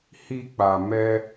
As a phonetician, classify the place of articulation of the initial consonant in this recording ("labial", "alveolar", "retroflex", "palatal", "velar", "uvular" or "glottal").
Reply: glottal